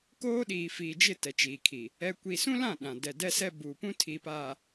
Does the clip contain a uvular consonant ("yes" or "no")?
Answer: no